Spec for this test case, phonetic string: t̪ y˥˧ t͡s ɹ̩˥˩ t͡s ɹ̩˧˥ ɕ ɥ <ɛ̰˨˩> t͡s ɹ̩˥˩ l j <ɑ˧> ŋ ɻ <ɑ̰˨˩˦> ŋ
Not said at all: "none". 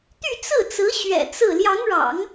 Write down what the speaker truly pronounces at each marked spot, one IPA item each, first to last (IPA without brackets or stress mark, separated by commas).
ɛ̰˨˩, ɑ˧˥, ɑ̰˨˩˦